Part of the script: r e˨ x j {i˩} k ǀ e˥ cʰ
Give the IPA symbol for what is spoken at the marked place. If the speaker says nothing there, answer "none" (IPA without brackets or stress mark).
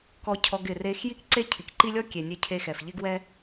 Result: i˥